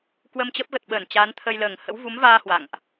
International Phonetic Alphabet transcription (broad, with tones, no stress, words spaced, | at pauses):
kwə˧mt͡ɕə˦˥p̚ ɣə˨˩t̚ɓəː˧˩n t͡ɕaː˨˦nt̪ʰə˧jləː˧˩ŋ hə̰˧˥wvu˨˦mvaː˧ hwa̰˧˨ŋʔ